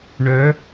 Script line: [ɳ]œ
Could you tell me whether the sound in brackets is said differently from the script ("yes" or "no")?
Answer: no